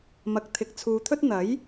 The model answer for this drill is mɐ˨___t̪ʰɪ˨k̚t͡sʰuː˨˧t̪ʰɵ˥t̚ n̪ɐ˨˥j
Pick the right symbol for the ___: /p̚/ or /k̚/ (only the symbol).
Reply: k̚